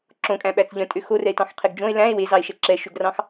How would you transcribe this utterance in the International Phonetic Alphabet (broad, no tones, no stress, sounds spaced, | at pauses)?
ǁ õ kʼ æ̃ ɓ æ t͡s ʎ œ̃ tʼ ø x o r ɛ e̯ t ɑ̃ x qʰ e ɡ d͡ʒ õ e̯ l æ̃ e̯ w e z ɑ e̯ ʃ ɛ ǁ ɛ ʃ ø ɡ r ɑ̃ x